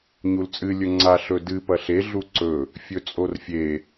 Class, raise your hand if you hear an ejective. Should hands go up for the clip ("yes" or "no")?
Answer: yes